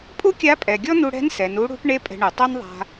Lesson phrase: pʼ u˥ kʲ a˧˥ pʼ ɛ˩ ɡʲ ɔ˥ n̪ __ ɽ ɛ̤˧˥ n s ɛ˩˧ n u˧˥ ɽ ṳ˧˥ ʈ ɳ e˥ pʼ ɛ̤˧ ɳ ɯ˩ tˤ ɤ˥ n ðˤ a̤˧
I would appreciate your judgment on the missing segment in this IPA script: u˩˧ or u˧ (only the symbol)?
u˧